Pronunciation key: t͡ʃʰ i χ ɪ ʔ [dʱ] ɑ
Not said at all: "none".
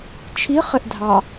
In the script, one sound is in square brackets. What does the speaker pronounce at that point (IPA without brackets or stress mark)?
dʱ